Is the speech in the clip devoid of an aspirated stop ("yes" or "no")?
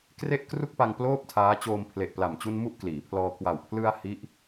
no